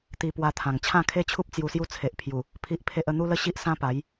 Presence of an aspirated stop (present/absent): present